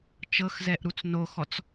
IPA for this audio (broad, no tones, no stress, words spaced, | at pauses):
t͡ʃɤxzɛʔ ɾut͡snoxɔt͡s